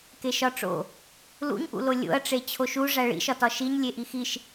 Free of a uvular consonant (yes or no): yes